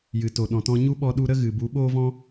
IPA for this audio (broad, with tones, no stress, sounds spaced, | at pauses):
j ɨ˨ t o˨ ɗ ɔ̃˨ t ɔ̃˧ ɲ u˦ ɓ ɔ˧ ɗ u˧ ɾ ə˦ ɣ ɨ˨ b u˨˦ ɓ o˦ v ɔ̃˦